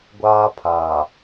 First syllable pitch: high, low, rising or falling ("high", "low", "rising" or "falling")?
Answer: high